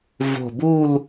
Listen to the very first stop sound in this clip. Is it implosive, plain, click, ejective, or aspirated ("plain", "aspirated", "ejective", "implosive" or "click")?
plain